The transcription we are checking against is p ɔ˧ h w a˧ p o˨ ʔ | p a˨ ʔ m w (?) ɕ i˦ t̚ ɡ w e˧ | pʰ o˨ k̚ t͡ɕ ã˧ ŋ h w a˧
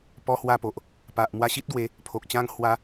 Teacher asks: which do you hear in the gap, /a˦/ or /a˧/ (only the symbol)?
a˧